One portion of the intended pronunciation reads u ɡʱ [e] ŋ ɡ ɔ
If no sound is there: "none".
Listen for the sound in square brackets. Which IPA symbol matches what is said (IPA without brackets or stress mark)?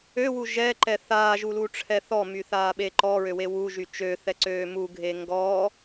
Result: e